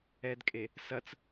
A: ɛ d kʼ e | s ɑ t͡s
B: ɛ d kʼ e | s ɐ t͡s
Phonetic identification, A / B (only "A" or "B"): B